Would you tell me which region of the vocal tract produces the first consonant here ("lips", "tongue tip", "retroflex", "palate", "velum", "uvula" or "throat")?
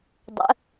tongue tip